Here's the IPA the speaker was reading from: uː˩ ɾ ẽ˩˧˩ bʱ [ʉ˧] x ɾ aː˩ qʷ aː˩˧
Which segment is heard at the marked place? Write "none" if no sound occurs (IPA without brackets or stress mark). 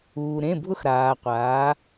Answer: ʊ˧